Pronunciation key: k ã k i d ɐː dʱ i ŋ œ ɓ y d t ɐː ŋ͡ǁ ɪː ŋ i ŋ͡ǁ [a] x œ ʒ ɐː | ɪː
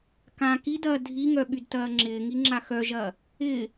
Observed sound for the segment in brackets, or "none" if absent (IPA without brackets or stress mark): a